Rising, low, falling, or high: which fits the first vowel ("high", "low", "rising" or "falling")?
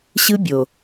high